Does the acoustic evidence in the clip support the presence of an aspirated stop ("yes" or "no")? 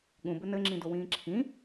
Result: yes